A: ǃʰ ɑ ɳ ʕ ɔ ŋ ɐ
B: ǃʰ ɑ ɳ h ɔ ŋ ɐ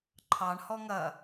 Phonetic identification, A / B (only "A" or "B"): B